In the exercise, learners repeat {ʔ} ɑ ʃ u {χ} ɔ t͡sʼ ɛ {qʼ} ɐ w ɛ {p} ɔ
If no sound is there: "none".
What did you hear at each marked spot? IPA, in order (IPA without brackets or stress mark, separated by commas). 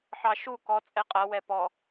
ħ, k, qʼ, p